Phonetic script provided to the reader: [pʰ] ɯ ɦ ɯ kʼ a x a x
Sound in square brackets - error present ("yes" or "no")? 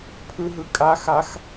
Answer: no